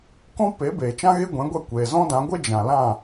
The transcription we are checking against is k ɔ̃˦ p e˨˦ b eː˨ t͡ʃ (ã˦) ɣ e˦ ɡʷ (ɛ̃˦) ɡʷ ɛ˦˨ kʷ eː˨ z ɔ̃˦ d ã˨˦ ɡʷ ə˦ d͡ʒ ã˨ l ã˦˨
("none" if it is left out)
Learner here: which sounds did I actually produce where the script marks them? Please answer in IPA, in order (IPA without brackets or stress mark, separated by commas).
ã˦, ɛ̃˨˦